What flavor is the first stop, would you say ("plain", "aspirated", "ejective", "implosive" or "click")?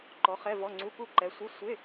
click